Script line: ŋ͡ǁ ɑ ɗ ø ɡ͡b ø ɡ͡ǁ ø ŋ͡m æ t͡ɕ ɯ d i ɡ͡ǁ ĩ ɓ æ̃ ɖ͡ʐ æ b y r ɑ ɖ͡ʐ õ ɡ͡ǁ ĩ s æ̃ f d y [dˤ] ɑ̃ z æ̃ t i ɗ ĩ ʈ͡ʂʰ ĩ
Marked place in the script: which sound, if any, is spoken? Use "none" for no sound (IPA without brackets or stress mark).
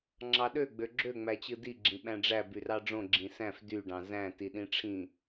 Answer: ɖ